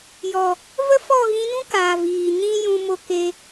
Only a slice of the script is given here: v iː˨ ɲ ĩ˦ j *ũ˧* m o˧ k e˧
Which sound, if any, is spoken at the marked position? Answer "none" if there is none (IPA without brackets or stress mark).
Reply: ũ˧